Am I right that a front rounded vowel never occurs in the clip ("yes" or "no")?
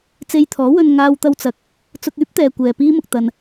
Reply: no